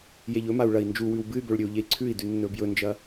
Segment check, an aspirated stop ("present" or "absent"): present